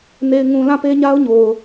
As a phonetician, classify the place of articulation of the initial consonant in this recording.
alveolar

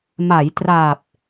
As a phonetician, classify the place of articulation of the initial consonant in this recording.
labial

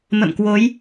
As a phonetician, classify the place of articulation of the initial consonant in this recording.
labial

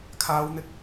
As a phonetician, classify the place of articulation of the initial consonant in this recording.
velar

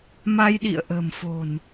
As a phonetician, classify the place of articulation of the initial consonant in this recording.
labial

